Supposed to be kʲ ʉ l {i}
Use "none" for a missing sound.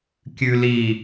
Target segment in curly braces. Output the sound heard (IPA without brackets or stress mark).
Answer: i